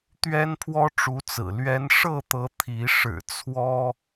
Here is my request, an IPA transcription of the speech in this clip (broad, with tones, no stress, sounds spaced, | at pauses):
t̪ ɥ ɛ˦ n pʰ w ɔ˦ ʈ͡ʂ u˨˦ t͡s ɹ̩˨˩ l ɥ ɛ˨˦ n ʂ ɤ˥˨ t̪ ɤ˨˦ t̪ʰ i˨˦ ʂ ɻ̩˨˩ t͡sʰ w ɔ˦